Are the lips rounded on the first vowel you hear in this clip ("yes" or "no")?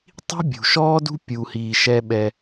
no